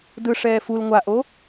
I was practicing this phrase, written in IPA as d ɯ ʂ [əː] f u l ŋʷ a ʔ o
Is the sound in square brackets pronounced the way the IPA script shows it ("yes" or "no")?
no